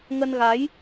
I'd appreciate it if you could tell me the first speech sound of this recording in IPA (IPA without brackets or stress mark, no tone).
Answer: ŋ